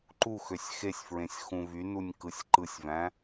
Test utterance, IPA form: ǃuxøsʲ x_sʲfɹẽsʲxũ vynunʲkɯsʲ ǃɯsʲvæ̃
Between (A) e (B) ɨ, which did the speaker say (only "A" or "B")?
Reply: A